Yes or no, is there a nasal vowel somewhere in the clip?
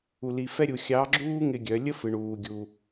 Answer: no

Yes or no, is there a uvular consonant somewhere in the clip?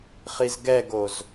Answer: yes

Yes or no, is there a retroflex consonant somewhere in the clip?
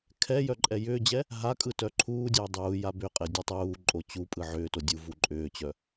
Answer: no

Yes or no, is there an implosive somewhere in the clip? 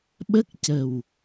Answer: yes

